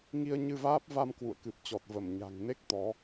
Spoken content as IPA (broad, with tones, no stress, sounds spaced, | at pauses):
ŋ i˧ ə̯ ɲ ɨ˧ v aː˦˥ p̚ v a˧ m k w ṵ˧˨ ə̯ k ɨ˨˩ p̚ t͡ɕ ɔ˨˩ t̚ v ə˧˩ m ɲ a̤˨˩ ŋ n e˦˥ k̚ t̪ ɔ˨˦